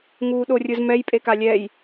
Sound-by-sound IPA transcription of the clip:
ŋ uː ɗ o rʲ ɯ z m ɛ j pʼ e k a lʲ ɛ j

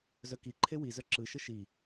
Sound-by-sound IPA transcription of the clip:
z œ k i ǃʰ e w i z œ ǁ ɯ ʃ ə ʃ i

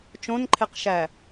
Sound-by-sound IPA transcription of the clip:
t͡ʃ õ n ǃʰ e q ʃ æ

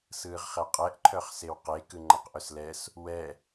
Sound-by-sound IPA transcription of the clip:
s ɯː ʁ χ ɛ qʼ ɛ ʔ ǃʰ œ χ s e w q e k ɯ ŋ͡ǃ a q ʔ œ s l ɛ s | w ɛ

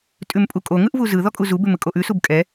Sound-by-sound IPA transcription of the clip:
tʼ ʉ m pʼ u kʼ o ŋ ɯ ʔ v u z ɯ ð ɔ kʼ u z u b ʉ m ɯ kʼ o ʔ ʉ s u b kʼ ɛ

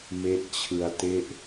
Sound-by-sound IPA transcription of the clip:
m e˦˥ ʔ t͡ɕʰ ɯ˧ a̯ t e˥˩ ʔ

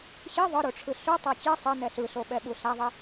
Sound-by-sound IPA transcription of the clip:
ɕ i ðˤ ɯ ɾ o ʈ͡ʂʰ ɯ ɬ u tˤ ʌ t͡ɕ i sˤ ɛ n ɛ ɬ ɯ ɬ o ɓ ɛ ɓ u ɬ a ðˤ ɛ

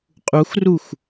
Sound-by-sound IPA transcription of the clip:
qʼ u x r u x

